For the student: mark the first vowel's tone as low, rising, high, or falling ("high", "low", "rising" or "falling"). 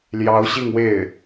rising